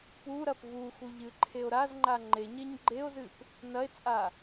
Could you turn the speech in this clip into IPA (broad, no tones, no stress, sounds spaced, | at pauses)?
p u ɾ ɐ p v u x u ʎ ɨ ǃʰ e o̯ ɾ a z ŋ͡ǃ a ŋ͡ǃ e ɲ e ɲ ɡ͡ǃ e o̯ z ɨ p | n ɐ e̯ t͡sʼ a